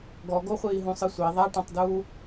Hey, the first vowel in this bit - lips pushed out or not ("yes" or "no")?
yes